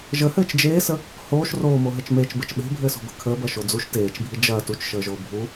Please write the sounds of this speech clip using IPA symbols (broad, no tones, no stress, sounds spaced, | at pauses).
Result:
ʒ ə h ɘː t͡ʃ d͡ʒ eː s ə | h oː ʃ r oː m o ɦ ɘ t͡ʃ m eː t͡ʃ b ɘ t͡ʃ ɓ e̤ bʱ ɘː s o̤ b ə̤ kʰ əː b ɐ ʃ o d͡z u ʃ t eː t͡ʃ bʱ i d͡ʒ ɐː t u t͡ʃ ʃ əː ʒ oː bʱ u